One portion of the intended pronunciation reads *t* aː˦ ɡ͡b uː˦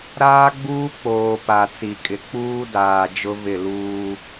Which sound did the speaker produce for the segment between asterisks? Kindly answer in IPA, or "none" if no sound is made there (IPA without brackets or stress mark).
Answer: ɾ